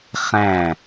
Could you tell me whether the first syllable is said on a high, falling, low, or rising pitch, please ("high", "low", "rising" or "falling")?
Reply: falling